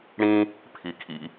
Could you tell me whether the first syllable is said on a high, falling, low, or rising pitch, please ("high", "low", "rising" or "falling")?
high